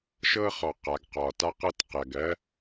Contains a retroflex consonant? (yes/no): no